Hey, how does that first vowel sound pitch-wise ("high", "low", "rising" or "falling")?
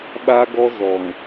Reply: high